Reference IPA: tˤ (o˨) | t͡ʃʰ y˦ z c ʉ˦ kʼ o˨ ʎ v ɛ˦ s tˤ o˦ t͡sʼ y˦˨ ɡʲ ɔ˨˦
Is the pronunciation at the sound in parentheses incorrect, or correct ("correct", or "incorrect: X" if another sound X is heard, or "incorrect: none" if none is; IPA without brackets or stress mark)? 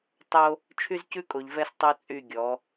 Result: incorrect: o˦